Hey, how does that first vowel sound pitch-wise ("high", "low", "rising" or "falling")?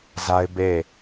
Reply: high